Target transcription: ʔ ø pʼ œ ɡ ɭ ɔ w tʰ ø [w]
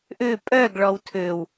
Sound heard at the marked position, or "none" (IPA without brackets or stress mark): w